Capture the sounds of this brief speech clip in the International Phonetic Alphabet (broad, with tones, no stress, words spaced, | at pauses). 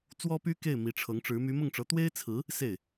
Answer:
t͡swɔ˥py˥ke˥˩ɪ̯ mi˧˥ʈ͡ʂʰɤ˧˥ŋʈ͡ʂɻ̩˧˥ my˧˥mʊ˥˩ŋʈ͡ʂɤ˧˥ t̪we˥ɪ̯t͡sʰɹ̩˧˥ | se˥˩ɪ̯